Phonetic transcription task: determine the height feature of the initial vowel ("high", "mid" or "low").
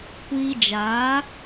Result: high